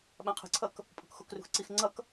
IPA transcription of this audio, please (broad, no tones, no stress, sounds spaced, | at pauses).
ɓ ã qʰ ə̤ ǀʰ ʌ k | pʼ o̤ k x o k r ṳ x ǀ i x ŋ͡ǀ ʌ k